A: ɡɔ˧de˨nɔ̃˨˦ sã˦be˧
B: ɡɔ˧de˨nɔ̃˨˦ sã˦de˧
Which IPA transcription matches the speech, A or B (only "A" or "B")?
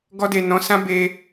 A